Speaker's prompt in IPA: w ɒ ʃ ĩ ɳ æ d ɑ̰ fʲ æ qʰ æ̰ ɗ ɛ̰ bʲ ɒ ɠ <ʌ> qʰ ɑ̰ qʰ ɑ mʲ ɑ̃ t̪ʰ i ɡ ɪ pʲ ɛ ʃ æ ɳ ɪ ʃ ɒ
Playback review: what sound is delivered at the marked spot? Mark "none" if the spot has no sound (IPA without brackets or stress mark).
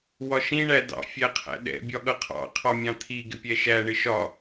ʌ